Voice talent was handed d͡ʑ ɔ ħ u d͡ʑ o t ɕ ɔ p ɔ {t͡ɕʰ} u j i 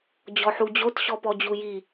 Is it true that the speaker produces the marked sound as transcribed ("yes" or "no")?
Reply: no